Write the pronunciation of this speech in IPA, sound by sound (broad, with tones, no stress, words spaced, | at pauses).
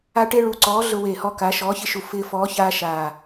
a˦ʈe˦ɭu˨˥ǀɔː˨˥ ɮʊ˦ we˧˩ hɔ˦ka˨˥ ʃɔː˨˥ çɪ˦ʃu˧˩ fɪː˦fɔː˨˥çaː˦ ʃaː˧˩